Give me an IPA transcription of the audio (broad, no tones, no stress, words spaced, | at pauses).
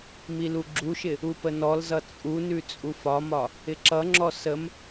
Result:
miluɡ͡ǁuʃɪ | upənɔlzʌ t͡sʼunʉ t͡sʼufɒmɒ | ɪǁʌŋ͡ǁɔ səm